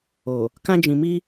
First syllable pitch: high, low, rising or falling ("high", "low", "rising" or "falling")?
low